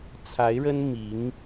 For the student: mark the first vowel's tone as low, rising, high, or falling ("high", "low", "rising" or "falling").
rising